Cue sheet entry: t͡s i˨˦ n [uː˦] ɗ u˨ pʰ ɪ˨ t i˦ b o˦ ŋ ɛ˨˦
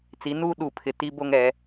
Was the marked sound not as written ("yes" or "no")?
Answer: no